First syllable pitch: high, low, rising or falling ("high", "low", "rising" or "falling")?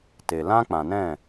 low